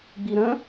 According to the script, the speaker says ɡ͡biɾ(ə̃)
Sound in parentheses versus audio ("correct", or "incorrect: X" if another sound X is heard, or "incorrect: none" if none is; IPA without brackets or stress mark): correct